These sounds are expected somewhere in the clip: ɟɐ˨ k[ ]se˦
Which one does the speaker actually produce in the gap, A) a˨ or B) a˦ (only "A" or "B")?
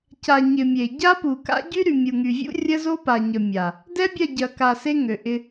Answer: A